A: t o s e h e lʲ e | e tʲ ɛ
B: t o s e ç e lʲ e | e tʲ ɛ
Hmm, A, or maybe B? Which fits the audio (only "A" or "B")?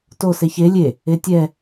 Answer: B